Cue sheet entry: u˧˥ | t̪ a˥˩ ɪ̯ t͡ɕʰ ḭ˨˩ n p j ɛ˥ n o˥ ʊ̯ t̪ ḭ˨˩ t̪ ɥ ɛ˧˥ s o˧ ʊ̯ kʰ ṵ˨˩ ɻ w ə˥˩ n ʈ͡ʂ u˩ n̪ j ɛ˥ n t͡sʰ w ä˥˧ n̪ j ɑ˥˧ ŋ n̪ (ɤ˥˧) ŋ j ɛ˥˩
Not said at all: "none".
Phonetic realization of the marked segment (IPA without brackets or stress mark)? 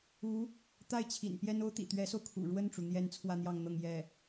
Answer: ɤ˥˧